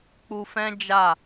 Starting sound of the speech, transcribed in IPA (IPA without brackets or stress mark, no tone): k͡p